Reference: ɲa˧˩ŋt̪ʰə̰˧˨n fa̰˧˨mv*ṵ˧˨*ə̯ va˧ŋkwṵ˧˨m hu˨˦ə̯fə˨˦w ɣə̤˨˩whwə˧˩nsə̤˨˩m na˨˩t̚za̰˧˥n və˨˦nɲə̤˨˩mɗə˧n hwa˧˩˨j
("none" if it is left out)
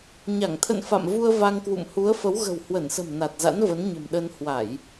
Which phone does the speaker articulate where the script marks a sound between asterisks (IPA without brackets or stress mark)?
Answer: u˧